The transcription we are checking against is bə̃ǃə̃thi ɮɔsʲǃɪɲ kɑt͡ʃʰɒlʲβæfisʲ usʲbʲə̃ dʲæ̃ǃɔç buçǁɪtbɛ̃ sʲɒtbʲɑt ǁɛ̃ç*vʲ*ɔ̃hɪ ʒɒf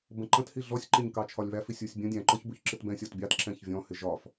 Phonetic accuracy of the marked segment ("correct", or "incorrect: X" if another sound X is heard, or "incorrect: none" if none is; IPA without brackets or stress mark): correct